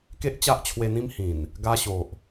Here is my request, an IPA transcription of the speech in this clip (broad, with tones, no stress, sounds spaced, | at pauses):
k e˦ ʔ t͡ɕ a˦ ʔ t͡ɕʰ w e˧ n̪ ĩ˦ m h ĩ˨˩ n | ɡ a˧ ɕ o˨ ʔ